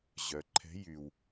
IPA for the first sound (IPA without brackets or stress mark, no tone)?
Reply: ʑ